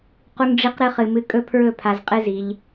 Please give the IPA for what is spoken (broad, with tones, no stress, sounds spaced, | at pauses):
q u˧ ŋ ɖ͡ʐ i˧ q ɾ ɨ˧ χ ɨ˨ m ɨ˧ kʼ ɵ˦ pʰ ɹ ɵ˦˨ pʰ a˧ z qʼ ɨ˦ z i˧ ʎ